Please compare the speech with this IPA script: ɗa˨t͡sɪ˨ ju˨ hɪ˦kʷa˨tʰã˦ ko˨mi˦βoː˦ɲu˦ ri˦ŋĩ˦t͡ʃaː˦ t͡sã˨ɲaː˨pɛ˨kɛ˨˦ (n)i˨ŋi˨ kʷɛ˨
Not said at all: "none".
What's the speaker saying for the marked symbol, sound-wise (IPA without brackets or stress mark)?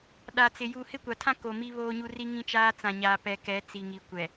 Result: t͡s